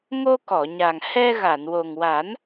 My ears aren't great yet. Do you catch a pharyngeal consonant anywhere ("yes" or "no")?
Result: no